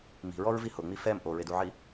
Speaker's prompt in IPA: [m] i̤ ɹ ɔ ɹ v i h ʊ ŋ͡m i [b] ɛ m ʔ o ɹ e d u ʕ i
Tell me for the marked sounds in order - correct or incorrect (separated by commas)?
correct, incorrect